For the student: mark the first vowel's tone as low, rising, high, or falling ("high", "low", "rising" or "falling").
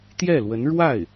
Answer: falling